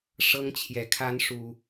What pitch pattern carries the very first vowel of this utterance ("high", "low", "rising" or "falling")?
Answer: high